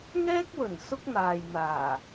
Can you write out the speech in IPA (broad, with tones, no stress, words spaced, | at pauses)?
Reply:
ŋɛː˥k̚wɵ˨˩n sʊ˥k̚n̪aː˨jn̪aː˨˩